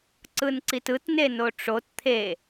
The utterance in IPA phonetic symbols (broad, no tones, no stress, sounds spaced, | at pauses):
ǀ ɯ n ǀ i t ɯ t n e n o ʈ͡ʂ o t t̪ʰ e